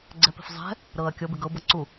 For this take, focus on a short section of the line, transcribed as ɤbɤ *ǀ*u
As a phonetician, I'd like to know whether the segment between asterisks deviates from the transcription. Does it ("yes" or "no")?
no